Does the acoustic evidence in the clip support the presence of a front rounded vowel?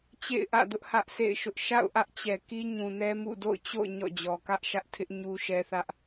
no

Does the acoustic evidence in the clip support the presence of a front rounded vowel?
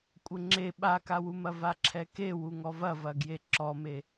no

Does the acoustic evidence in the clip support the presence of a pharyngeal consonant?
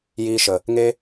no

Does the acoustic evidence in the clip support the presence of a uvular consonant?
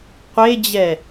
yes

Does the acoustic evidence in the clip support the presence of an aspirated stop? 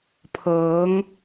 yes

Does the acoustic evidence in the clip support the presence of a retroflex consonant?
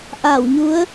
no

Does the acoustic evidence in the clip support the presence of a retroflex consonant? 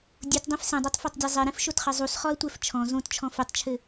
no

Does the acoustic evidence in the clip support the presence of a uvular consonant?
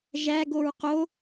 yes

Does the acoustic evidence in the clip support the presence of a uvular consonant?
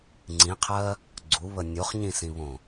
yes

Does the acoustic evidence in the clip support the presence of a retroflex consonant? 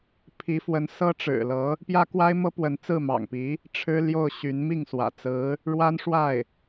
yes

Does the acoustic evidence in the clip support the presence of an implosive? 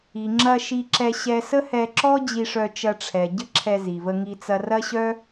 no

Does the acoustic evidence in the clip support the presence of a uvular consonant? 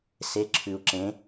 no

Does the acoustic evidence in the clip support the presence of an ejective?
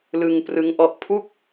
no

